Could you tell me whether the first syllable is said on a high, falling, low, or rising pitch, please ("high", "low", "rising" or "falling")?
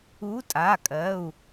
rising